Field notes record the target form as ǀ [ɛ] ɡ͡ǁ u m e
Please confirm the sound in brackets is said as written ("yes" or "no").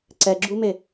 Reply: yes